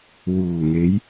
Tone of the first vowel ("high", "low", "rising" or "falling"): low